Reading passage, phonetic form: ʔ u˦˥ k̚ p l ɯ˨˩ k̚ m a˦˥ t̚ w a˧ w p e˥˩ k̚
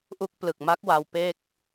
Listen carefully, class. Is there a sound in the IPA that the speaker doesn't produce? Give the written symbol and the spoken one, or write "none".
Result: t̚ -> k̚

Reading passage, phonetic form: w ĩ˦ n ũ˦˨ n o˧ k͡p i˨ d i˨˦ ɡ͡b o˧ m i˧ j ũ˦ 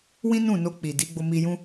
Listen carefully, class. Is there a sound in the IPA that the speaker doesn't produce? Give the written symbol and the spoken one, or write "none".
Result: none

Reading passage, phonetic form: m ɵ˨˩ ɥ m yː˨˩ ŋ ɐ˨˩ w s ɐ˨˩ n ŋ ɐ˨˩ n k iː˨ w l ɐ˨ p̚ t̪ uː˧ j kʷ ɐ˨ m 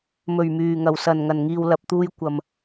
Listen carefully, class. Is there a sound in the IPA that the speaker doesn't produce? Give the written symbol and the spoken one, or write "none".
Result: k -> ŋ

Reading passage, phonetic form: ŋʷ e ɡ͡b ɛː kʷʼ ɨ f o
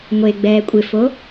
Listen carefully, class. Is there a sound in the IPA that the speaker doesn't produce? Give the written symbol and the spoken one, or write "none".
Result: ɨ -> ɪ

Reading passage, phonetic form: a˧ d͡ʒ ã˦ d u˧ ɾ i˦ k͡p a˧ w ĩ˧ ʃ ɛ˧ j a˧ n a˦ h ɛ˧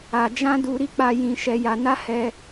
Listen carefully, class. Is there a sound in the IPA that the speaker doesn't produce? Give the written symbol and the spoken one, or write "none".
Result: w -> j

